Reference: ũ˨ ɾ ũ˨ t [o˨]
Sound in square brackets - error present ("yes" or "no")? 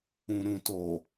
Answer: no